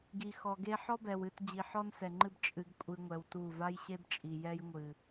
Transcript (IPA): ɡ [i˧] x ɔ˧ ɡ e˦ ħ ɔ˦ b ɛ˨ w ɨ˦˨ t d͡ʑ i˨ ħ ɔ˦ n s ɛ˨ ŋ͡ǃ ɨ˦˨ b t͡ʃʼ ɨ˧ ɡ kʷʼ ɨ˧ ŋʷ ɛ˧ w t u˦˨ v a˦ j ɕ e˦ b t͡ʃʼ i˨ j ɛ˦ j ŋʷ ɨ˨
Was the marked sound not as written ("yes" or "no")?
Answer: no